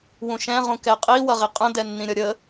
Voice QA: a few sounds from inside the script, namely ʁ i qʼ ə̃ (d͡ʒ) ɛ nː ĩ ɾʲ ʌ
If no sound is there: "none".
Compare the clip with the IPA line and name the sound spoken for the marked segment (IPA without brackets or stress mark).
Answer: d